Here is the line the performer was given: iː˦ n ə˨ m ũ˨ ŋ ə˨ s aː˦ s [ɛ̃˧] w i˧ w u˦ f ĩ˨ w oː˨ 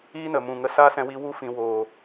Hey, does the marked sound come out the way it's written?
yes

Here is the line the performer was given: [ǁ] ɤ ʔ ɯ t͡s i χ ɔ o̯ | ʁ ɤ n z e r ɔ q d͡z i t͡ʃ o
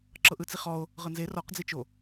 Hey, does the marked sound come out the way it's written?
yes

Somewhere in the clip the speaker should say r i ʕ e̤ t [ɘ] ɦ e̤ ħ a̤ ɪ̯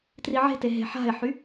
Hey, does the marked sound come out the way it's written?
no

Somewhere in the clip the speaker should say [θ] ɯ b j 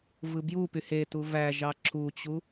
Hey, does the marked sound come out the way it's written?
no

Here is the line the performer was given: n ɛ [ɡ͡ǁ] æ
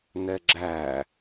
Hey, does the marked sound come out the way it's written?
yes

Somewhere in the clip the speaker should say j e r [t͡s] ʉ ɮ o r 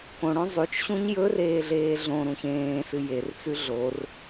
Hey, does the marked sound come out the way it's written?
yes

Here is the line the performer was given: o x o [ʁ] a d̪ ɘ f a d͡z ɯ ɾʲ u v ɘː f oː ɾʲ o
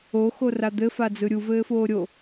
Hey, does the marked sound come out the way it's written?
no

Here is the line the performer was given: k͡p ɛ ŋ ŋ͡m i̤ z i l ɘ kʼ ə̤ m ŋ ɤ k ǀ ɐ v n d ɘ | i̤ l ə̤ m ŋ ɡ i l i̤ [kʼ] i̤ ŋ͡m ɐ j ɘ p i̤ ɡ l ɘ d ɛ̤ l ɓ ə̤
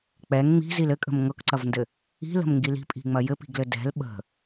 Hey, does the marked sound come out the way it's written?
no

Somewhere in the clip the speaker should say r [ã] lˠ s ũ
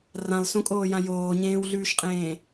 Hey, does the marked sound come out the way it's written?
yes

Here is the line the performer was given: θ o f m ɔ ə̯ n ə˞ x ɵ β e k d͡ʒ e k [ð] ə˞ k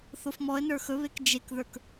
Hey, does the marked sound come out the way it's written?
yes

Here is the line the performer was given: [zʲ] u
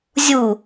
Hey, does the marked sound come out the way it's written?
yes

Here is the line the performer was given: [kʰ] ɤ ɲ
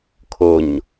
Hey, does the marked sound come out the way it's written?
yes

